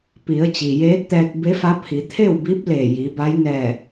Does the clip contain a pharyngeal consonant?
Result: no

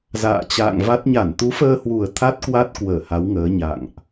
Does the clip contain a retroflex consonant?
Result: no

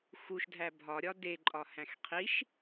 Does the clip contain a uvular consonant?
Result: yes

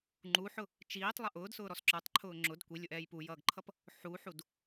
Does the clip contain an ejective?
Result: no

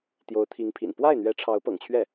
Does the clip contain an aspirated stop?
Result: yes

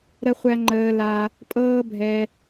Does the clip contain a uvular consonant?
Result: yes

